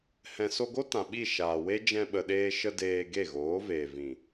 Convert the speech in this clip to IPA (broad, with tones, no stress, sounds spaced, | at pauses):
h ɛ̃˨ s o˧ ɡ o˦ t ã˨ ɓ i˦˨ ʃ aː˨ w e˦ d͡ʒ ɛ̃˧ ɓ ə˨ ɗ eː˧ ʃ ə˧ d eː˧ ɡ e˦˨ ɣ oː˨˦ v eː˨ v ĩ˨